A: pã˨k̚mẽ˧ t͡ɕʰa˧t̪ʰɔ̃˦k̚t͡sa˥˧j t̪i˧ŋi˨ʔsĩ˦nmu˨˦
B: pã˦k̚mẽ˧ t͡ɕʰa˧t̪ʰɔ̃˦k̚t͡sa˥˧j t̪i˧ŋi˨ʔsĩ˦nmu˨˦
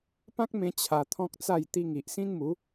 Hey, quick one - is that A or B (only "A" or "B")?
B